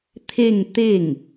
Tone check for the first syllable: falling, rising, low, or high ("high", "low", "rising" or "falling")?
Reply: falling